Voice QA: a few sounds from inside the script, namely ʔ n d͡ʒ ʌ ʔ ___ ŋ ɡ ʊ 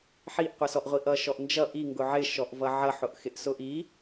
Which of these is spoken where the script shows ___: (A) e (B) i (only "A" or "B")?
B